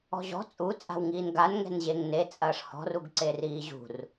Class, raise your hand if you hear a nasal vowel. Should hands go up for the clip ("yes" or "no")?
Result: no